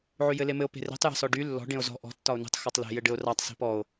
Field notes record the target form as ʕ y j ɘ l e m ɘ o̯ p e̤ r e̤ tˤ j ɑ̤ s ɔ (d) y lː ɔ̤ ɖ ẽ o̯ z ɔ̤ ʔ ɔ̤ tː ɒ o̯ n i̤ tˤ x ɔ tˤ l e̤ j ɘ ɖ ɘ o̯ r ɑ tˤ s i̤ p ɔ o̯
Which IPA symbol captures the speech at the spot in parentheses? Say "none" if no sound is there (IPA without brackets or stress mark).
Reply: ɖ